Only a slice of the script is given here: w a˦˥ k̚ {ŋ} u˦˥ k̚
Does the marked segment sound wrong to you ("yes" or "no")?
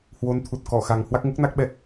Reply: no